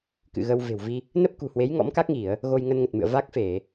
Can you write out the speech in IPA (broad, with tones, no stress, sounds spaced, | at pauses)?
k ɨ̰˧˨ ɣ ə˧ w v e̤˨˩ w v i˧ | n ə˦˥ p̚ k ṳ˨˩ h w e˨˦ j ŋ ɔ̰˧˥ m k a˦˥ k̚ ŋ i˧˩˨ ə̯ | ɣ o˧ j ŋ ə˧ n ŋ ə˨˩ t̚ m ɨ̰˧˨ ə̯ v a˦˥ k̚ f e˧˩˨